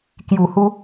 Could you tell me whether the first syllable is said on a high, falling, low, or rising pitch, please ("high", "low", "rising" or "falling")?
low